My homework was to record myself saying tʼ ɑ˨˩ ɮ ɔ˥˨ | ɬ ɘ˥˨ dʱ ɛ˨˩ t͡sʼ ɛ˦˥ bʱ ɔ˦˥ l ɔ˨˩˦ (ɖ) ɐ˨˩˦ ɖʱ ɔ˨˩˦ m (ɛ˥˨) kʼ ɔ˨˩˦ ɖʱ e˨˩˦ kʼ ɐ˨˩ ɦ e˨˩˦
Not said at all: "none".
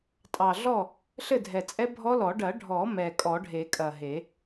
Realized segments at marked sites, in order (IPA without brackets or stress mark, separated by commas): ɖ, ɛ˨˩